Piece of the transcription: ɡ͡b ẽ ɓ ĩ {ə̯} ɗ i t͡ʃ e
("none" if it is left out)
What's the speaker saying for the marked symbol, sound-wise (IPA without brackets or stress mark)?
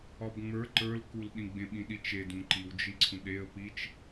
none